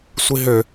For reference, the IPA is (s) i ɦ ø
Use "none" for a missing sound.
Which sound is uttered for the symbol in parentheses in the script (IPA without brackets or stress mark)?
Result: sʷ